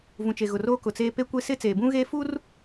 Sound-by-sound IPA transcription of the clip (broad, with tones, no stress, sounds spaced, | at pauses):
v ũ˨ t͡ʃ e˨ ɣ ʊ˨ r oː˦ k ʊ˨ t͡s eː˦ p e˦ kʷ e˦ s ɪ˦ t͡s eː˨ b ũ˦ ɣ eː˦ f uː˦ r